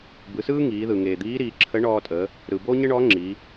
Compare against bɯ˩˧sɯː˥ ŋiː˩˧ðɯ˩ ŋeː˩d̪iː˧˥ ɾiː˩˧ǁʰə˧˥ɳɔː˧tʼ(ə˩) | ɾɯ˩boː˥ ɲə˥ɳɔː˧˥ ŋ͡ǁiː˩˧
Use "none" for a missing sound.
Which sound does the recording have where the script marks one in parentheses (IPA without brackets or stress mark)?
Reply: ə˩˧